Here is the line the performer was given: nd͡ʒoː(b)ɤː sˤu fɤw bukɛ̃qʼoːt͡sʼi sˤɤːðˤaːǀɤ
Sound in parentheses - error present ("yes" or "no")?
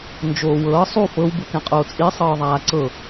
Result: yes